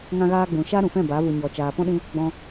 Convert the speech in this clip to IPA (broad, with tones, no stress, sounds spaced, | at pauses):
ŋ ã˧ ɣ aː˧ ɡ͡b ũ˨ ʃ a˦ ɾ ũ˨ f ɛ̃˦˨ b a˨˦ v u˨ ɲ ɔ˨ t͡ʃ aː˨ p ɔ̃˦ ɗ ĩ˧ | ɡ͡b ɔ̃˧